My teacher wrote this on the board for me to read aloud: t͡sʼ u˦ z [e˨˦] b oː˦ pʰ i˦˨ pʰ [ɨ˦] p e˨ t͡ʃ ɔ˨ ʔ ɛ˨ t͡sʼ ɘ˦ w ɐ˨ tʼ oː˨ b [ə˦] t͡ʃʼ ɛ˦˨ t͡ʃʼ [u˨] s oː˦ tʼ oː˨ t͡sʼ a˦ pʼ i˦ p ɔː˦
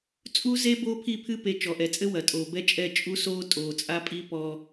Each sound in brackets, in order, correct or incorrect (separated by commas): incorrect, correct, incorrect, incorrect